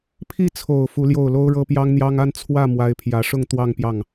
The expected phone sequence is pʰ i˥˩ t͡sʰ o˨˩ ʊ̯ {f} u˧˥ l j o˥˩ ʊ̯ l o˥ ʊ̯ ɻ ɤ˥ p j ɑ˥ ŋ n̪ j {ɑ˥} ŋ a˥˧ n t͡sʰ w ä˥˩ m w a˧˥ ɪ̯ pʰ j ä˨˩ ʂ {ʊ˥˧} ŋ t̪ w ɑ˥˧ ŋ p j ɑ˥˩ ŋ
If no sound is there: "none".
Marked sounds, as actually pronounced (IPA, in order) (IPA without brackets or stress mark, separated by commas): f, ɑ˥, ʊ˥˧